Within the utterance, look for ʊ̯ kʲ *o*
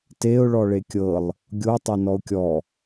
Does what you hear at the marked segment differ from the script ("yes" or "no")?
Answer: yes